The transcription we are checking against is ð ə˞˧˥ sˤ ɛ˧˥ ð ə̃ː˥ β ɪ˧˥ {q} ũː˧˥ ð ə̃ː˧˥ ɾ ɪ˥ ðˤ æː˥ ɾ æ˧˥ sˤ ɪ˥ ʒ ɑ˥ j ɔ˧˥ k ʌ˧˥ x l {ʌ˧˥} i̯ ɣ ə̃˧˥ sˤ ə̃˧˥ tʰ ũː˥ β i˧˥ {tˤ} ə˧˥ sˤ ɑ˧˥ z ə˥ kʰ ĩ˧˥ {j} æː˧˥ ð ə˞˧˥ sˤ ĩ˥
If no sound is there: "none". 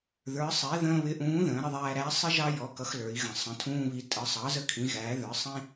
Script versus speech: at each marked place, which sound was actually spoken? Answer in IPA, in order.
ʔ, ə˞˧˥, tʼ, ɣ

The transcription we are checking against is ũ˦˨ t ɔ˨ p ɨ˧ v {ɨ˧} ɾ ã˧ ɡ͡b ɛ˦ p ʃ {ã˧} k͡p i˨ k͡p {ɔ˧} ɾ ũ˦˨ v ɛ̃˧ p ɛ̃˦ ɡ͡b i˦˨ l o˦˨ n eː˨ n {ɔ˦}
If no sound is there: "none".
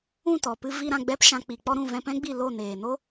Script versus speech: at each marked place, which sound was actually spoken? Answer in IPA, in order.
i˧, ã˧, ɔ˧, o˦

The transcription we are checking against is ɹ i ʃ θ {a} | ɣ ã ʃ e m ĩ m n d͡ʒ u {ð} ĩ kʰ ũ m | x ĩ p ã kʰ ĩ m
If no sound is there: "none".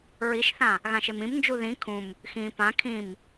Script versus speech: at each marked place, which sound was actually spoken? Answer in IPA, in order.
ã, ð

